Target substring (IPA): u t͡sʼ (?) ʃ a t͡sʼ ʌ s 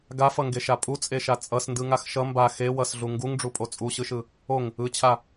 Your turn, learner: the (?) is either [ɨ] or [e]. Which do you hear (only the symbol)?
e